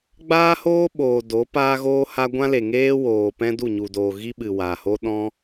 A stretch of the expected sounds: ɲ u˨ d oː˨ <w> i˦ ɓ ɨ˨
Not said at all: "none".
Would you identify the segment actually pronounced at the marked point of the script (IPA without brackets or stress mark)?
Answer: ɣ